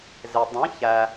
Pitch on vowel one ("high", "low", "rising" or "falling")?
low